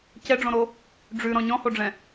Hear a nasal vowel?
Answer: yes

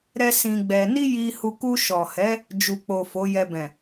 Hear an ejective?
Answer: no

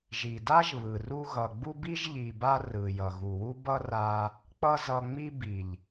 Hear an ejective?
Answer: no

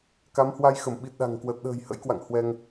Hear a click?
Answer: no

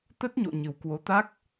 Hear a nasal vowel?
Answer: no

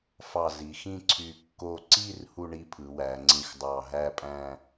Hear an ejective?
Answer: yes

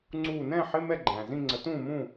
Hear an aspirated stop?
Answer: no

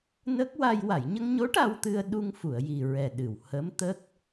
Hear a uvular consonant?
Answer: no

